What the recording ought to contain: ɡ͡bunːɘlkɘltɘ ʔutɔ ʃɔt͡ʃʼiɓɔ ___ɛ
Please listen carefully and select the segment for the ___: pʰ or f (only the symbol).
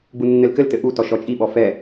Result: f